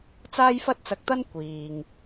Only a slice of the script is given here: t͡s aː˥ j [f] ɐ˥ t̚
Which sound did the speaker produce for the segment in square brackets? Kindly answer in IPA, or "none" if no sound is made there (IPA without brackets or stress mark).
f